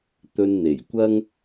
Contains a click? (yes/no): no